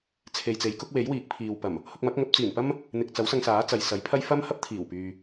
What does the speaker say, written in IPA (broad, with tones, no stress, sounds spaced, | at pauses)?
t͡sʰ e˨ j t͡s e˨˥ j k ʊ˨˥ k̚ w e˨˥ j w iː˨˥ k̚ pʰ iː˨ w p ɐ˨˩ m | h ʊ˧ k̚ m ɐ˨˥ k̚ ŋ ɐ˨˥ p̚ t͡s iː˨˩ n p ɐ˥ m | n̪ ɪ˨ k̚ t͡s ɐ˨˥ w s ɐ˧ ŋ s aː˨˥ t͡s ɐ˨ j s ɐ˨˥ j pʰ ɐ˥ j f ɐ˥ m h ɐ˥ p̚ t̪ʰ iː˨˩ w p yː˨